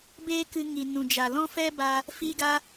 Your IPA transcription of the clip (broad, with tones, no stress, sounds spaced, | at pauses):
b eː˦ k ɨ˧ ŋ i˨ n ũ˨ d͡ʒ a˨ l ɔ̃˦ f ɛ˦ b a˦ | f iː˦ ɡ a˦